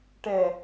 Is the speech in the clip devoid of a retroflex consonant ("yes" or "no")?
no